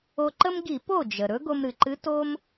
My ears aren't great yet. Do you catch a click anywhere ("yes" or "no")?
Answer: yes